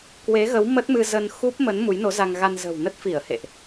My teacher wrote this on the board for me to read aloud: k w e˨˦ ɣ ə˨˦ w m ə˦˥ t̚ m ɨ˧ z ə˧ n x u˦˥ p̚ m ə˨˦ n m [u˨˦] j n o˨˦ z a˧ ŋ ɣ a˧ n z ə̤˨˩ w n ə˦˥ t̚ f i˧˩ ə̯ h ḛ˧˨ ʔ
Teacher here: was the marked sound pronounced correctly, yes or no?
yes